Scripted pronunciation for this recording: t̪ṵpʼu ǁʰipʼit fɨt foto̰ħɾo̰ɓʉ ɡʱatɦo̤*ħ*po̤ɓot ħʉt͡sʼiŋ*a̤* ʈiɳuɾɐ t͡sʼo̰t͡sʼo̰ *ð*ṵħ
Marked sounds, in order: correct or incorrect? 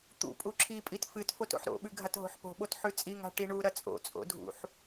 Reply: correct, correct, incorrect: dʱ

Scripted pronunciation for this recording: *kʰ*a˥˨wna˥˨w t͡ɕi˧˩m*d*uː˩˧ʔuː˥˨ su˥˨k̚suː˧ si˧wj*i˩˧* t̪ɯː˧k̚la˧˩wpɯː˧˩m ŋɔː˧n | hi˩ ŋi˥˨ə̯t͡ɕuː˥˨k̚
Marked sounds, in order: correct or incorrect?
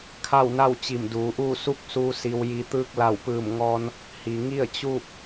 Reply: correct, correct, incorrect: i˧

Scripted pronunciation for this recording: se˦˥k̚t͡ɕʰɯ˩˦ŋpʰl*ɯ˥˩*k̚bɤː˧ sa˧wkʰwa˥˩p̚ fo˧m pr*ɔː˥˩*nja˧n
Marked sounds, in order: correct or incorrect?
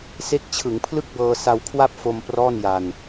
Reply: correct, correct

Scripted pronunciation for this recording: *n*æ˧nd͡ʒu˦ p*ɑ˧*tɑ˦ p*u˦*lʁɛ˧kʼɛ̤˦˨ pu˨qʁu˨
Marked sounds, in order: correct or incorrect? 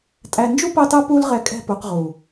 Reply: incorrect: tʼ, incorrect: ɑ˦, correct

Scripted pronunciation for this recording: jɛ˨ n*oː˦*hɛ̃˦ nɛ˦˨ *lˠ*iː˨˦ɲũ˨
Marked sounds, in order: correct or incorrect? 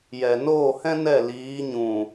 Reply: incorrect: oː˦˨, incorrect: l

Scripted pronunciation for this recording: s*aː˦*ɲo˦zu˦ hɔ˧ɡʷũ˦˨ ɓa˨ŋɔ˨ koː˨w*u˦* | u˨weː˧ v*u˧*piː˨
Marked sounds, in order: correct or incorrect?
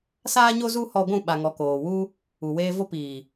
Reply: correct, correct, incorrect: o˧

